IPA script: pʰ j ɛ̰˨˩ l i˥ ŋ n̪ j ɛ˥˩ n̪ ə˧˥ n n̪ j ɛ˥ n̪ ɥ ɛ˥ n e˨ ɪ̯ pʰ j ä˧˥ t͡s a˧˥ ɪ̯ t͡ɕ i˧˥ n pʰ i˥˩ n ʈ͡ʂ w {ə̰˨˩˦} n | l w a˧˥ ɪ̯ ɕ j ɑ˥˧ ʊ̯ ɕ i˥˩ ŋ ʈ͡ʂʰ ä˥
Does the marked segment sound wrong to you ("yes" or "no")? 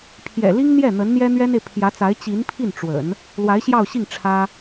no